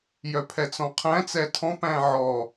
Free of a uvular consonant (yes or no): no